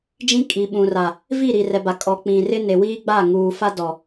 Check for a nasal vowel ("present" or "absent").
present